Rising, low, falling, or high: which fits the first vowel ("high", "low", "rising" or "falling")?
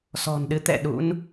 low